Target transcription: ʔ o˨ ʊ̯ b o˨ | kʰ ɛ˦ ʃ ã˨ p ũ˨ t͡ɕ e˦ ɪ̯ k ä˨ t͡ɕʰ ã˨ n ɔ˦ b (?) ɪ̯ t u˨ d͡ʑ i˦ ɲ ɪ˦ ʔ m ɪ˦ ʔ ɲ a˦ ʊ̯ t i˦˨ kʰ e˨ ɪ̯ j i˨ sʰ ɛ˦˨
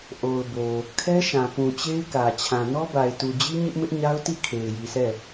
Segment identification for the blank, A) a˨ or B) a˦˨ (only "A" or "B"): A